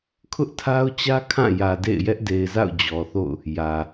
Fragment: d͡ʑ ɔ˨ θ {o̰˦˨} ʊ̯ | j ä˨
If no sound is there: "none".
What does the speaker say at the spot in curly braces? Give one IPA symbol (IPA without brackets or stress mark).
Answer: o̰˦˨